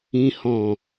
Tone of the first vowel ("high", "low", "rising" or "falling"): low